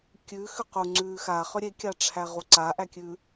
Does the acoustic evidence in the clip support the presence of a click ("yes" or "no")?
yes